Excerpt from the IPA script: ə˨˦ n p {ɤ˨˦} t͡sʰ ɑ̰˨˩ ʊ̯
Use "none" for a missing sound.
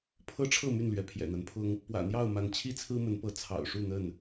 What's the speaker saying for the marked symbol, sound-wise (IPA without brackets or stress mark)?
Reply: ɤ˨˦